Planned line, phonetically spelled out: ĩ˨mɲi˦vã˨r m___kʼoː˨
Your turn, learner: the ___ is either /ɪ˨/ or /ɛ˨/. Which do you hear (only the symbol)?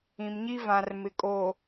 ɪ˨